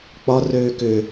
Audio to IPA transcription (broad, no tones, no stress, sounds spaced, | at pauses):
k͡p ɒ r øː k ʏ